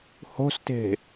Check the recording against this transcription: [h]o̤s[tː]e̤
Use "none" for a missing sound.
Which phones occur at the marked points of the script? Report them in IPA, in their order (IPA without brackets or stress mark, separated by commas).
h, t